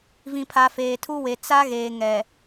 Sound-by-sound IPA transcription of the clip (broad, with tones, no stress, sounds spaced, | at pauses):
v ĩ˨ pʰ a˨ f eː˨ tʰ u˦ w e˨ t͡s a˦ ɣ eː˨ ŋ ɛ˨